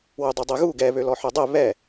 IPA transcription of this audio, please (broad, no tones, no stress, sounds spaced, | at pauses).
w ø dˤ y dˤ e ɣ u ɡ ɛ β ø l ɔ ħ ø dˤ e β ɛ